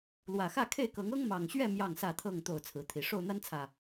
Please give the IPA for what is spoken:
lwä˨˩xä˥˨kʰe˥˨ɪ̯kɤ˨˦ŋ ɤ˦ŋmɑ˨˩ŋɕɥɛ˥˨ mjɑ˥˨ŋsä˥˨t̪ʰɤ˥˨ŋ t̪o˥˨ʊ̯t͡sʰɹ̩˨˦t̪ʰi˨˩ ʂo˥˨ʊ̯n̪a˦nt͡sʰä˨˩

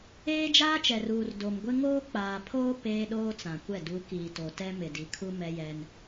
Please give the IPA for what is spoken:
eː˦d͡ʒaː˦t͡ʃɛ˨ruː˨r do˨mɡʷɪ˦ ŋoː˦k͡paː˨pʰoː˦ peː˦ɗoː˦ t͡sã˨kʷɛ˦˨ du˨˦ kiː˨to˨ tɛ˦mɪ˨di˨kʰu˦ mɛ˦jɛ˦n

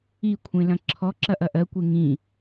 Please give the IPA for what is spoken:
ikʷʰẽlɐ̃ ǁʰɔ ǁɐʔɐʔɜkʷe ŋĩ

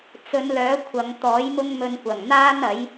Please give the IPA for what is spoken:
t͡sɵ˨˧nlœː˨˥ kʷʰɐ˨˧ŋ t̪ɔː˨˥jmʊ˥ŋmɵ˧n kʷɐ˨˩ŋn̪aː˥n ɐ˨˥j

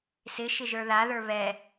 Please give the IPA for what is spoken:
sɪ ʃɪʒə˞ða ðə˞βɛ

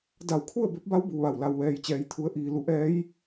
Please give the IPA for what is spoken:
da˧˩wkʰu˥˨ə̯ be˧˥p̚ba˧˥w bu˩˧ʋa˧˩w la˩wʋɛː˩jt͡ɕɛː˩˧j t̪ʰu˩˧ə̯ ʔiː˩ lu˩˧ʔɛː˧˥j

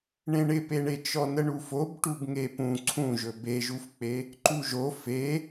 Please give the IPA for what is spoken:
ɳẽɳɪpeɳe t͡ʃɔnəɳufob ʈubŋepũ ǀʰũʒɵ beʒufk͡pe | ǃuʒo fe

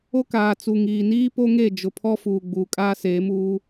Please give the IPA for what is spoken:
o˦kaː˨t͡su˨ ŋiː˨niː˦po˦ŋe˦˨ d͡ʒʊ˨pʰɔ˦fuː˨ ɡ͡buː˨kʼaː˦seː˨˦muː˦

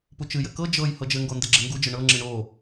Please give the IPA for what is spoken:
put͡ʃɨjɘ kɤ d͡ʒɤj hɤd͡ʒɘŋɡo ndɘɡ͡ǁɘŋɡud͡ʒɘ ɳɤŋ͡ǁɨ ɳo

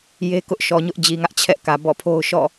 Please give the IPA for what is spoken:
je˦kʊ˦ʔ ʃɔ˨ɲʊ˦ʔd͡ʑi˨ŋä˦ʔ t͡ɕʰɛ˦ʔkä˨bɔ̰˦˨pʰo˦ʊ̯ ʃɔ̰˦˨

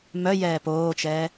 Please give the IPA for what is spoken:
mœ jɛːpoːt͡ʃɛː

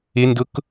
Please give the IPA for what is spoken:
ɪndʊk

